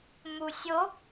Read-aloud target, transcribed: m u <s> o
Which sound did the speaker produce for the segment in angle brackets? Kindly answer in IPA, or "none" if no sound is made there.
sʲ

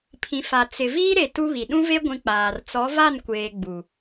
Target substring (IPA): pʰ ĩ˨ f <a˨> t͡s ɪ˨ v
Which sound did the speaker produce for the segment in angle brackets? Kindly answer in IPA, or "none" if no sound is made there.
a˨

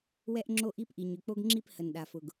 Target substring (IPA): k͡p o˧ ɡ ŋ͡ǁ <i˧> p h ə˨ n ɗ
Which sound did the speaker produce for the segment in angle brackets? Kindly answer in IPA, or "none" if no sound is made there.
i˧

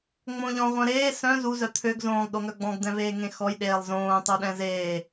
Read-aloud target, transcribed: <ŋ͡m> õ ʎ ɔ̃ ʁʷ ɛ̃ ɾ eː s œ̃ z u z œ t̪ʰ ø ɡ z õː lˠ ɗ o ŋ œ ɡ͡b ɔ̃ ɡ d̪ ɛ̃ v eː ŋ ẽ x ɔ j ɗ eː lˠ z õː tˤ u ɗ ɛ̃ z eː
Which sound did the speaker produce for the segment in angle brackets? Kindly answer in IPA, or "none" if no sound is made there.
ŋ͡m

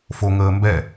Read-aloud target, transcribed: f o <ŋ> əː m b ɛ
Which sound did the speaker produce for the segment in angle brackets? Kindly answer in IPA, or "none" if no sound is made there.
ŋ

